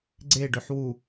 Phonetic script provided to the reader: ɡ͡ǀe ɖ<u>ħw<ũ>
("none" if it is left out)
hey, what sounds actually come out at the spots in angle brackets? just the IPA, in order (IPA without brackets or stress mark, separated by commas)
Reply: ø, u